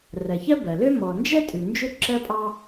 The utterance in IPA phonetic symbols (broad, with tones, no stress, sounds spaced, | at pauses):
r ɜ˩ ç ɜ˥ b ɜ˩ l ø˥ m ɔ˩ n d͡ʒ ɛ˥ tʼ ʉ˩ n d͡ʒ ø˥ ǁ ɜ˥ pʼ ɑ˥